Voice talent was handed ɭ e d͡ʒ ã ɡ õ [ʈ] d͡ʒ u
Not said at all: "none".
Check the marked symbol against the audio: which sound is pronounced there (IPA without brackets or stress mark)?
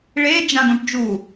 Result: ʈ